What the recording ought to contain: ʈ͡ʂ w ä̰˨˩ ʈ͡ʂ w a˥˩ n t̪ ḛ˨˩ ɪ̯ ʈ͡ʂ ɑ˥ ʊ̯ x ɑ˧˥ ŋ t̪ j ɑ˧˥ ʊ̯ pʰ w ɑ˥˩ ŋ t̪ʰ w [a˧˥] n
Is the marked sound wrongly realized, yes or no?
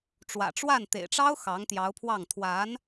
no